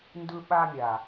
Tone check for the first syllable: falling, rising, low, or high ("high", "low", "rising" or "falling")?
high